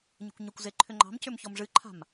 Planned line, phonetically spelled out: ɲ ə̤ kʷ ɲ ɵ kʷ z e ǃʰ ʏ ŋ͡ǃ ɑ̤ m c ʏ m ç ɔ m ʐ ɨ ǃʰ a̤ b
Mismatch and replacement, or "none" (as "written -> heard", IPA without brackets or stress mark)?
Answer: b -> m